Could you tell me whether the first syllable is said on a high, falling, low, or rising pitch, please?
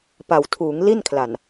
low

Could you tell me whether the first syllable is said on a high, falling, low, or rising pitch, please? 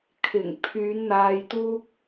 low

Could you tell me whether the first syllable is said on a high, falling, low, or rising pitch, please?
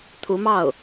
rising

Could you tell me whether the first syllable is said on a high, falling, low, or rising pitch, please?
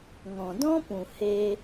low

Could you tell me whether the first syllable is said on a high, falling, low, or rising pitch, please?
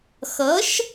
rising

